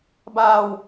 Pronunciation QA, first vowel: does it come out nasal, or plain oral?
oral